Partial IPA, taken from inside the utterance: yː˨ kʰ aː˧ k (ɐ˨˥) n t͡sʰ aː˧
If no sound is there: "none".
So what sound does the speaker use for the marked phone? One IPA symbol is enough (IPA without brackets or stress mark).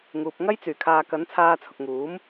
ɐ˨˥